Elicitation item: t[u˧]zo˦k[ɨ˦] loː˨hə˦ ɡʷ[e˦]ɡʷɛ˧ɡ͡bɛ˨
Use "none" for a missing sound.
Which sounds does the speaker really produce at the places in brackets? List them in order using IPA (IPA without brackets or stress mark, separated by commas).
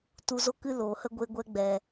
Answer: u˧, ɨ˦, e˧